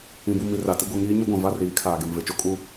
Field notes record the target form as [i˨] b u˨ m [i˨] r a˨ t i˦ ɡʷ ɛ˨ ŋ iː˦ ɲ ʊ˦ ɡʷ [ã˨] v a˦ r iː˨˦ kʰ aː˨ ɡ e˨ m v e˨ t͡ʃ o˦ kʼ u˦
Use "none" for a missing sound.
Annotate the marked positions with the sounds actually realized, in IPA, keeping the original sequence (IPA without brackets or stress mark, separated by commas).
ĩ˨, i˨, ã˨